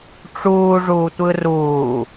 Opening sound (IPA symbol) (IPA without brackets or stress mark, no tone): ʈ͡ʂ